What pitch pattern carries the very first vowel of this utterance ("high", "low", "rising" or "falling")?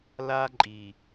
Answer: high